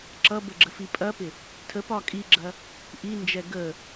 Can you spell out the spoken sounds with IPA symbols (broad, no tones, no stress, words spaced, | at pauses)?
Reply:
ǁʌbə ɡ͡ǁəfipʼɐpɪ | tʰəpɒ kʼiɡ͡ǁɐ | ʔind͡ʒɛ ɡə